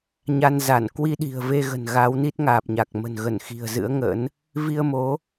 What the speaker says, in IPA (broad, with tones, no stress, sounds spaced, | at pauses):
ɲ a˧ n z a˧˩ n k w i˧ ɗ i̤˨˩ ə̯ v e˧ ɣ ə̤˨˩ n ɣ a˨˦ w n i˦˥ t̚ ŋ aː˨˩ p̚ ɲ a˨˩ k̚ m ə̤˨˩ n ɣ ə˧˩ n x i̤˨˩ ə̯ z ɨ̰˧˥ ə̯ ŋ ə̰˧˥ n | v i˧ ə̯ m o˨˦